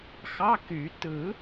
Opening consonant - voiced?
no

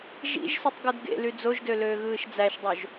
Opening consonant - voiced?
yes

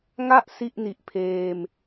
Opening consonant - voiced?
yes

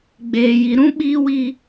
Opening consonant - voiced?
yes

